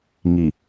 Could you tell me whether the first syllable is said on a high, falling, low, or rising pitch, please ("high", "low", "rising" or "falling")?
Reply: low